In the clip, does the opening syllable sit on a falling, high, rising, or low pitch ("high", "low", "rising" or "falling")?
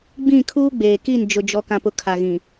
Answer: falling